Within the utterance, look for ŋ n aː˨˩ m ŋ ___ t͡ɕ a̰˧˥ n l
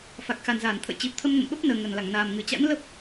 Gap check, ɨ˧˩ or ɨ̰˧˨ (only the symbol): ɨ˧˩